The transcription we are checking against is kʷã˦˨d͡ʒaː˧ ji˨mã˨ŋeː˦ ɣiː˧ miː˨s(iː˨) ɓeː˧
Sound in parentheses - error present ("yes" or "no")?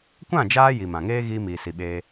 yes